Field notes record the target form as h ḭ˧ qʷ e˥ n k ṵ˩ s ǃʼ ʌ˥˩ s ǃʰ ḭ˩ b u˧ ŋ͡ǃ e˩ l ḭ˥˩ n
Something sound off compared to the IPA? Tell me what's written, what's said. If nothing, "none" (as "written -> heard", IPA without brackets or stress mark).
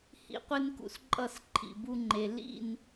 none